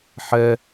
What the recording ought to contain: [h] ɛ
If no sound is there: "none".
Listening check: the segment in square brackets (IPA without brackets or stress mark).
ħ